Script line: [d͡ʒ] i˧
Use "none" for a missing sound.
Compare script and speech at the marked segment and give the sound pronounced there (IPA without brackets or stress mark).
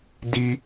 d